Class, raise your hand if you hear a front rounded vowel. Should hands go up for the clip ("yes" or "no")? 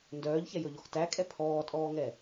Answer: yes